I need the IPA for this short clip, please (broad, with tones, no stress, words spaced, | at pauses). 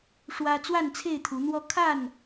ʂwä˦ t͡swa˥˨nt͡sʰe˥˨ɪ̯t̪ʰu˨˦n̪wɔ˦ kʰa˥˨n